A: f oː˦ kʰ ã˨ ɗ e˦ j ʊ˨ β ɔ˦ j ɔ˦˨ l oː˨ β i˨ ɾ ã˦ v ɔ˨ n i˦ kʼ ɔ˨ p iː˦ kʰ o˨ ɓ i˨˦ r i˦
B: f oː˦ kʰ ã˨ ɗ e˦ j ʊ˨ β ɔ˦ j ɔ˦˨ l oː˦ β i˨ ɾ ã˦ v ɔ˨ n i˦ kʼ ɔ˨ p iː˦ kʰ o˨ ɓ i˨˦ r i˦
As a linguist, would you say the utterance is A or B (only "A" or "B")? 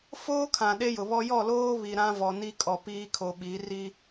B